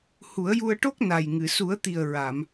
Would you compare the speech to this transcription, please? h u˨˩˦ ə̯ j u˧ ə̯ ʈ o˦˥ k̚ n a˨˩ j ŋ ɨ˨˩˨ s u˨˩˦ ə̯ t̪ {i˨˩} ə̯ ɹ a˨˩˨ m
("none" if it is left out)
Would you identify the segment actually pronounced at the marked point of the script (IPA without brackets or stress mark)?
i˨˩